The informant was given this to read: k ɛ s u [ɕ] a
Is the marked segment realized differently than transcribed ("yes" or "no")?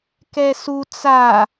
yes